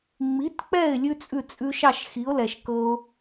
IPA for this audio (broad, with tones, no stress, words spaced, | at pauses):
ŋ͡mi˩˥tk͡pɛ˥˩ɪ̯ lʲʉ˥t͡sʼʉ˥˩t͡sʼʉ˧ʃɑ˥˩ʃ xi˩˥ʊ̯lɛ˩ʃkɤ˧ʊ̯